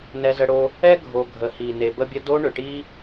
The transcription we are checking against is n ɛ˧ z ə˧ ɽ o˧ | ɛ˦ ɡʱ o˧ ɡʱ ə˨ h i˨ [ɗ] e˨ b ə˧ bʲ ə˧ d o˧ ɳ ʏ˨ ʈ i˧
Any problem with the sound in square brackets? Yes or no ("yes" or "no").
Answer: yes